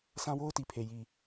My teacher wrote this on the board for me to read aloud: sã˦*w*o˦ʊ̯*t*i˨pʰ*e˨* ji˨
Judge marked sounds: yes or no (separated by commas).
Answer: yes, yes, yes